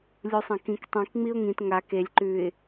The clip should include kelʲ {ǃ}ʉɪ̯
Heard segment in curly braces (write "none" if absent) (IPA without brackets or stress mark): ǃ